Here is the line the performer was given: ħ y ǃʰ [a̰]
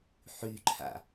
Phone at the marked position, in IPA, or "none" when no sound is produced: a̰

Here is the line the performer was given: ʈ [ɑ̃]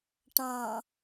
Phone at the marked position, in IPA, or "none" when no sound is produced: ɑ̃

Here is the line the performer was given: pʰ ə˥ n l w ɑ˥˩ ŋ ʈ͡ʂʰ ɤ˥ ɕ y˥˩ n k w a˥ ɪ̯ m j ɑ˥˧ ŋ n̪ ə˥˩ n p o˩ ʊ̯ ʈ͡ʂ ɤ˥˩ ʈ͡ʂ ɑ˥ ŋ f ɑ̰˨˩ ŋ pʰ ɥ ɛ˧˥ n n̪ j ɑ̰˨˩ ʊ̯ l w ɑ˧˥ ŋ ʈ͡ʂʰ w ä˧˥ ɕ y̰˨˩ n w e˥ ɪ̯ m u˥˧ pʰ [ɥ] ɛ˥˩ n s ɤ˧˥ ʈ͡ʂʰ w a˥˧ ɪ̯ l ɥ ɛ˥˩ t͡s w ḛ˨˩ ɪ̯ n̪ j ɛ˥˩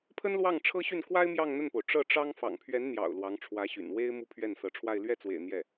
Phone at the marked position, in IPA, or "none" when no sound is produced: ɥ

